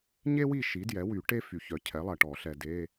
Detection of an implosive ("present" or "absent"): absent